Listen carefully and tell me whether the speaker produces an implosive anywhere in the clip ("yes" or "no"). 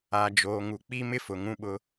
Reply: yes